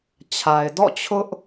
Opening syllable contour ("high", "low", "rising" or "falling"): low